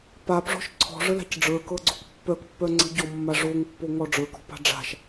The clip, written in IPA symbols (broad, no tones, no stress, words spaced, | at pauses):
papʐɔ̤ʃ ǀʰɔ̤ʐəla̤c ɖ͡ʐə˞kɤɡ͡ǀok pːœkpːœ ŋ͡ǀə̤ ɟɔmːa ʐoŋpːoŋɔ ɖ͡ʐə˞kɔ̤pa̤ ɖ͡ʐa̤ʃ